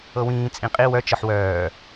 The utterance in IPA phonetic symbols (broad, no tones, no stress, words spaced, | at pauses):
ɤwĩː t͡sʼĩqʼi wœ t͡ʃɤħwœː